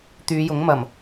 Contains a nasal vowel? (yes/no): no